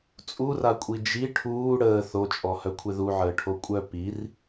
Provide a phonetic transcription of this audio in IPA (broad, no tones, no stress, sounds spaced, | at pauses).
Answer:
t͡sʼ u r a kʷʼ i d͡ʒ i ʈʰ uː ɽ əː θ o t͡ʃʼ ɔ h œ kʷʰ e ð u ʕ əː ʈʰ o kʷʼ œ p i r